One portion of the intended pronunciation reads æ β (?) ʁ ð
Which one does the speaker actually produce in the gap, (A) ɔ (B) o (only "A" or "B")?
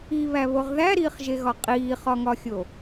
B